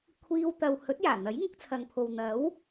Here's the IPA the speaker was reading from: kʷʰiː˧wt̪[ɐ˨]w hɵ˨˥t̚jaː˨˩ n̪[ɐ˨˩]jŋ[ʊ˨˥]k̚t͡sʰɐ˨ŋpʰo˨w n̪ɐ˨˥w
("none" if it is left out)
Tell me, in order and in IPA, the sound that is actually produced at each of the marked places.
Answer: ɐ˨, ɐ˨˥, ʊ˨˥

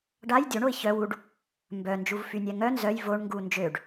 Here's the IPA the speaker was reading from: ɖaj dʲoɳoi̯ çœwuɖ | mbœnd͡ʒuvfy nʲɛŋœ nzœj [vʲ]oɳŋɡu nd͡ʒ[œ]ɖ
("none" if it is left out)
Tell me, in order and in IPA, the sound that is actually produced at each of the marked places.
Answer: v, ø

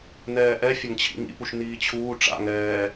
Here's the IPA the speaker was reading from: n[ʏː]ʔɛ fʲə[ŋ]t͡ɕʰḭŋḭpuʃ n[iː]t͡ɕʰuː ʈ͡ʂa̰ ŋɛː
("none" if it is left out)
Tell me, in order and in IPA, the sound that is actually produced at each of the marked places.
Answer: ɛː, ŋ, iː

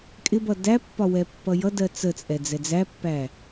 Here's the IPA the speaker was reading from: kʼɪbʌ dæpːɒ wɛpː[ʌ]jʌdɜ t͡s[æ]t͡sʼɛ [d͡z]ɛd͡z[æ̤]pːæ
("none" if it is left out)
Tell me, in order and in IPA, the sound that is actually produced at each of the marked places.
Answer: ʌ, ə, d͡z, æ

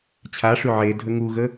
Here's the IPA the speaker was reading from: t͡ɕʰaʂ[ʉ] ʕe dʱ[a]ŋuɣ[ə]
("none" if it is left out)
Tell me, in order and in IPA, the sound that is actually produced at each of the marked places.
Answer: ʉ, ə, ə

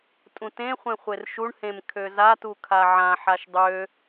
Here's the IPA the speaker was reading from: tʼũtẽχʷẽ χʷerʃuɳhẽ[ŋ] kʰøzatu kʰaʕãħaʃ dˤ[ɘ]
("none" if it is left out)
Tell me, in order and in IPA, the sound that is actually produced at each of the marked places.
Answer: m, ø

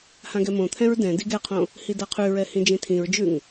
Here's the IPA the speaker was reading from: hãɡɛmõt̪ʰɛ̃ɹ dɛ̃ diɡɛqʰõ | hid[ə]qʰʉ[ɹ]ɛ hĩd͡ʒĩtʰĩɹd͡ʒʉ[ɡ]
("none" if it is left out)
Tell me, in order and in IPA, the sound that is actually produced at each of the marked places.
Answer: a, ɹ, ŋ

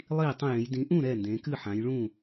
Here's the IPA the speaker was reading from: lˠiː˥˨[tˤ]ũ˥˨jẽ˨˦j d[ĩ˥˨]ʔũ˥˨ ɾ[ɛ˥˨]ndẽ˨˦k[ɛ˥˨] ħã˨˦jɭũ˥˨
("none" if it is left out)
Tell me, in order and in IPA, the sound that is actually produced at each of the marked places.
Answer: tˤ, ĩ˨˦, ɛ˥˨, ɨ˥˨

